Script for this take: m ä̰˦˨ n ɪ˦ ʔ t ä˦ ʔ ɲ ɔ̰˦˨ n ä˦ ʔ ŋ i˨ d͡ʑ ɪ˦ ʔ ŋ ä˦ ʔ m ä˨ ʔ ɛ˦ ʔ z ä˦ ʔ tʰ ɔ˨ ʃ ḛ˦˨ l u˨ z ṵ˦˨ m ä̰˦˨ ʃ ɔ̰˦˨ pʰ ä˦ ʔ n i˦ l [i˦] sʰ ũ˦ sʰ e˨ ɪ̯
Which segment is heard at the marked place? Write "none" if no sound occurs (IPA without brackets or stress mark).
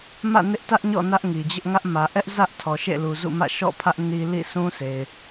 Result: ḭ˦˨